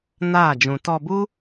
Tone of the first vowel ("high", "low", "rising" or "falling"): falling